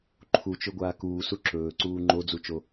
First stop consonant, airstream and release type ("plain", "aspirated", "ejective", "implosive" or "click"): click